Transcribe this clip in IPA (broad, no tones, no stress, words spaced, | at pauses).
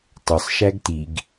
tˤʏsˤʃæɡ tiɡ